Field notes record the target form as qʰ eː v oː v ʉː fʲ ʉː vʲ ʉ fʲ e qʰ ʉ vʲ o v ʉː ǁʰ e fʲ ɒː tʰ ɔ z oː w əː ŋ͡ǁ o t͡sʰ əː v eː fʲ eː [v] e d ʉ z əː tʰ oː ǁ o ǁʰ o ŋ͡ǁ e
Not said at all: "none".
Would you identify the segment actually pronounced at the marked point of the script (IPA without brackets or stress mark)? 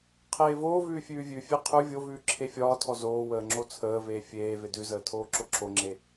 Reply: v